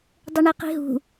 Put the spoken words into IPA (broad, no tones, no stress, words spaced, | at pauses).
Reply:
dˤɘɳiqi̤ɦṳ